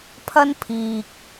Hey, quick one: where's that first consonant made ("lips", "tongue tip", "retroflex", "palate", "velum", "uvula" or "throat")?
lips